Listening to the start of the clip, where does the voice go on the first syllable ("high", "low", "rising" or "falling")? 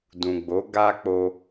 low